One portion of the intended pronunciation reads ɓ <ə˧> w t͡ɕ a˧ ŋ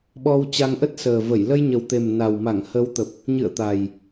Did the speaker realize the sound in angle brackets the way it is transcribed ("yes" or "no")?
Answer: no